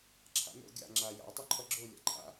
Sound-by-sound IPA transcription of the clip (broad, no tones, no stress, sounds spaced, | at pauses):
ǁʰ a̰ n o̰ ɡʲ a̰ ŋ͡ǁ a j a̰ w tˤ œ ǃʰ ʌ ɡ͡ǁ o lʲ a̰ ǃʰ a̰